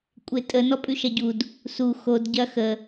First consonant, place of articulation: velar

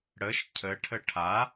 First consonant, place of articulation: retroflex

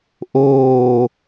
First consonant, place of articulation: glottal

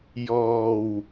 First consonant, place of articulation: palatal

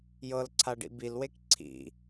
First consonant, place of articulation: palatal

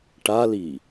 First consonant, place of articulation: retroflex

